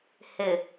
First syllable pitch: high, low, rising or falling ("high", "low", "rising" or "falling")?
low